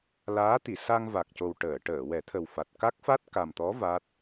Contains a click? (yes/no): no